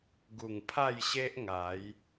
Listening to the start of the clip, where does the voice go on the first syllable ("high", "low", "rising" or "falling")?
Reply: low